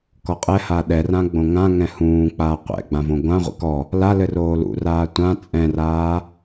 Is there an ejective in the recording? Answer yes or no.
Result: yes